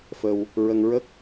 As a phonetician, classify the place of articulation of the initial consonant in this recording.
labial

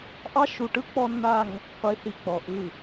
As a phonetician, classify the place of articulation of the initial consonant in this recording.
glottal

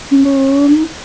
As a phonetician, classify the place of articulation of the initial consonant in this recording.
labial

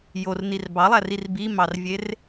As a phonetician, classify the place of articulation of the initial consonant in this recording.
palatal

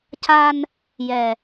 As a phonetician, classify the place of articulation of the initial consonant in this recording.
palatal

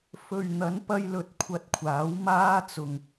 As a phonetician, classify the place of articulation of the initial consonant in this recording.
labial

